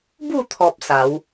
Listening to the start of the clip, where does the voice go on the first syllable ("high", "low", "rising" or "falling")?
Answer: falling